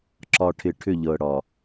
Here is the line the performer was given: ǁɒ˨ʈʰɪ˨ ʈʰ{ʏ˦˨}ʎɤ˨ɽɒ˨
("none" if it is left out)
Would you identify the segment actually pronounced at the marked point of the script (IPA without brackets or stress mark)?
ʏ˦˨